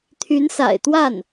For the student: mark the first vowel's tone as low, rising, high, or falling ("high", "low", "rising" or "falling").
rising